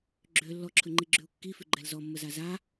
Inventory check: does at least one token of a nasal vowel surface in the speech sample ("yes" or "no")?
no